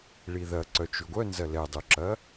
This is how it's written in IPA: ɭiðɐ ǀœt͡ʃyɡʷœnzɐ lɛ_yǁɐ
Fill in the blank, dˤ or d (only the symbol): dˤ